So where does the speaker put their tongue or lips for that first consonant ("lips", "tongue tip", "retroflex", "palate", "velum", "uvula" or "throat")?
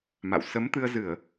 lips